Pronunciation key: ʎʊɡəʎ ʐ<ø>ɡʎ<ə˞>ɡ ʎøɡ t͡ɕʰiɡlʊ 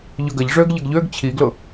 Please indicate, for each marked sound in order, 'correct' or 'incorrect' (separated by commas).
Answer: correct, incorrect